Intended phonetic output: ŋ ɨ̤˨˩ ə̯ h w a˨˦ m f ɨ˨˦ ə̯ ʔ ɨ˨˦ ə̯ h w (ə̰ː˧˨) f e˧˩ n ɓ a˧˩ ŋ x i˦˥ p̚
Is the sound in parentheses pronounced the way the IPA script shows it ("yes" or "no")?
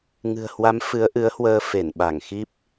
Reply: no